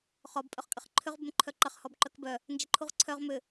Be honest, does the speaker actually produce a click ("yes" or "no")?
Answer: yes